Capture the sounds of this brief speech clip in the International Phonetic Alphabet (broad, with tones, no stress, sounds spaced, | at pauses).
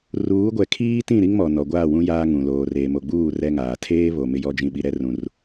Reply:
r uː˨˦ ɡʷ ɛ˨ kʰ iː˦ t ĩ˦˨ ɾ i˦ ŋ m ɔ˨ n ɔ˨ ɡʷ aː˦˨ w ũ˦ j aː˦ ŋ ũ˨ l oː˨ r eː˨ m o˨ ɡ͡b uː˦˨ r ɛ˦ ŋ aː˨ tʰ eː˦ β o˨ m ɪ˦ j ɔ˦ d͡ʒ ĩ˨ ɓ i˨ ɾ ɛ˦ r ũ˦ r